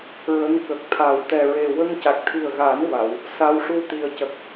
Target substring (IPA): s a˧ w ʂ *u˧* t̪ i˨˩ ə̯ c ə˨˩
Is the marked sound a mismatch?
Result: no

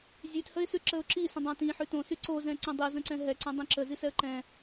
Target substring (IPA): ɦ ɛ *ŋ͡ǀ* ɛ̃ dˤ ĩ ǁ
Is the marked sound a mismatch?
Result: yes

